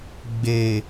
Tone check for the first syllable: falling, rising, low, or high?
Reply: low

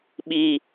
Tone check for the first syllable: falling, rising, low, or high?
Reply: high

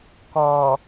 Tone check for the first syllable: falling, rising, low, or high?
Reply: low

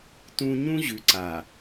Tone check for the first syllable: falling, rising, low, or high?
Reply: high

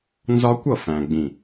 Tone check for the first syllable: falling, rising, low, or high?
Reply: high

